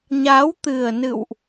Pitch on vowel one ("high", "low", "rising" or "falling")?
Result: rising